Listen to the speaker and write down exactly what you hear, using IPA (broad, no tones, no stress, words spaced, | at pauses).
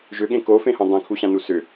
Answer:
ʒʏɠẽ kofẽhõ dˤẽkʰuɕãnu sʏ